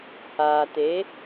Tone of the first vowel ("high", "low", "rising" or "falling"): low